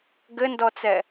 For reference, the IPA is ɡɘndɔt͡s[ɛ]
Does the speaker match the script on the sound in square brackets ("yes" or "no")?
yes